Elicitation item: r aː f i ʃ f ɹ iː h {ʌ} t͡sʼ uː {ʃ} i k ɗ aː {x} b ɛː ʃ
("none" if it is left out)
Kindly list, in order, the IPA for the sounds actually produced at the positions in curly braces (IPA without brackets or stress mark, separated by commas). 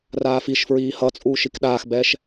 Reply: ʌ, ʃ, x